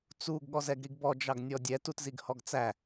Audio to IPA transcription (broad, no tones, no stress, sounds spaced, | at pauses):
t͡s u ɡ ɠ ɔ z ɛ ɡ ɾ i ɡ b ɔ d͡ʒ ɑ ɡ nʲ ɔ dʲ ɛ t u t z i ɡ h ɔ ɡ t͡s æ